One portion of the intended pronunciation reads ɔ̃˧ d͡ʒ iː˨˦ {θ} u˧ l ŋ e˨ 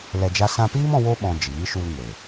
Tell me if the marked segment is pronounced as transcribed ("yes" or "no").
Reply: no